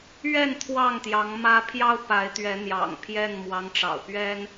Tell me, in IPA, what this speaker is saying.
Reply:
ɥɛ˥˨n t̪ʰwɑ˥˨ŋt̪jɑ˨˦ŋmä˦ pʰjɑ˦ʊ̯pa˨˦ɪ̯t̪ɥɛ˨˦ n̪jɑ̰˨˩ŋpʰjɛ˥˨n mwɑ˨˦ŋʈ͡ʂɑ̰˨˩ʊ̯pɥɛ˦n

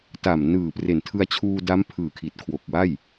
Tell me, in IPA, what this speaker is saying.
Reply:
ta˨˩mnɯː˨˩pre˨˩n tʰɯ˧a̯t͡ɕʰuː˧da˦˥m pʰɯː˨˩kʰi˨˩t̚kʰwo˨˩k̚ wa˥˩j

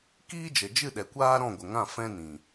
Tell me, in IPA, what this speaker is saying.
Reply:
kiː˦ d͡ʒə˨d͡ʒɨ˦˨ɗɛ˨kʷaː˦ ɾɔ̃˦˨ɡʷə˨ŋã˦˨ fɛ̃˦nĩ˨

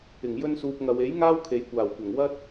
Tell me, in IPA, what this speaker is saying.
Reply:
ɪ˨˩ŋ jɵ˧n suː˨p̚ŋɐ˨we˨˥j ŋaː˥wkʰe˨jkʷaː˨˩wkʷɐ˨˩ŋ wɐ˥t̚

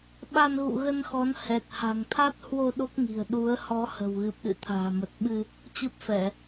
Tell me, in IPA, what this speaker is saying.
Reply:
ɓa˧nɣṵ˧˨ɣə˧nxɔ˨˦n hɛ˨˩t̚ ha̤˨˩ŋt̪ʰa˦˥t̚hwo˧ ɗo˦˥k̚ŋi̤˨˩ə̯ ɗu˨˦ə̯ hɔ˨˦ hə̤˨˩wɣɨ˨˩p̚ɗɨ̰˧˨ t̪ʰa̤ː˨˩mə˨˩t̚ɓɨ˧ | t͡ɕɨ˦˥p̚fɛ˧˩˨

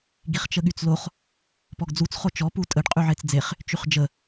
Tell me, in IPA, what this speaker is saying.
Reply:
ɡiχt͡ʃəɠyt͡sloχ | pɔɡd͡zut͡s χot͡ʃɔ putʼəɖ qʼyʕet͡sd͡zeχ | t͡ʃyχd͡ʒə

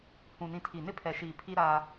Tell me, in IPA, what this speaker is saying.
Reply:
hũ˨nĩ˨ tʰi˨ nɪ˦pʰɛ˨ʃiː˨ pʰi˦ɾaː˦

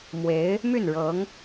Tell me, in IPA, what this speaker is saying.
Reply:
mwe˧˥ɪ̯ | my˥˩nɻɤ˧˥ŋ

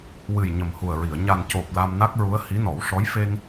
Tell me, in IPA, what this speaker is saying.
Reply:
wɨ˨˩j ɲə˨˩mhu˨˩ə̯ɹi˨˩˨ə̯ ɲa˨˩n co˨˩p̚ la˧mna˦˥k̚ɹu˧˥ə̯ hi˧˥nɔ˨˩˦wʂɔ˧˥j fe˧ŋ

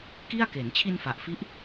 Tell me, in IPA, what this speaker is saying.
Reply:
ki˥˩a̯ke˩˦n t͡ɕʰi˧nfa˨˩ʔfi˦˥ʔ

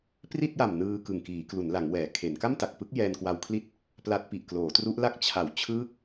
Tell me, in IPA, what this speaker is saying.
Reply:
pri˥˩t̚ja˨˩m nɯː˧ kɯ˨˩ŋkiː˩˦klu˩˦nla˩˦ŋ wɛː˩˦kʰe˩˦n ka˥˩mta˨˩k̚pɯ˦˥k̚ jɛː˧nkwa˧wkʰli˥˩t̚ | pla˦˥t̚pi˨˩ʔ kloː˩˦tru˦˥ʔla˥˩k̚ t͡ɕʰa˩˦wt͡ɕʰɯː˦˥k̚

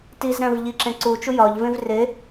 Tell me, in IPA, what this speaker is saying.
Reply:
tizɾæ̃v ʎiǁẽ ǀut͡ʃu jɒʎvẽv re

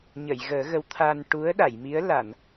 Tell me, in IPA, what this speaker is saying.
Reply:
ɲə˨˩˨jɣəː˨˩˦ɣə˧˥w t̪ʰa˧n ʈu˧˥ə̯ɗa˨˩˨jmi˧˥ə̯ la˨˩˨n

